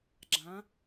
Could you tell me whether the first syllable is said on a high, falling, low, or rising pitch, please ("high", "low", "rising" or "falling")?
rising